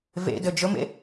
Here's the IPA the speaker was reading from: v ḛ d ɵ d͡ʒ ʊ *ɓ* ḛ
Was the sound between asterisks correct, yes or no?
no